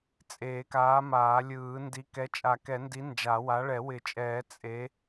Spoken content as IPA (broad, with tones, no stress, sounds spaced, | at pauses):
t͡sʼ eː˨˩˦ k aː˨˥ m aː˨˩˦ lʲ ɯː˨˩˦ n d i˨˥ k ɛ˨˥ t͡ʃʼ a˨˩˦ k ɛ˨˩˦ n d i˨˥ n d͡ʒ a˨˩˦ w a˨˥ ɭ ɛ˨˩˦ w ɪ˨˩˦ t͡ʃʼ ɛː˨˩˦ t͡sʼ e˨˥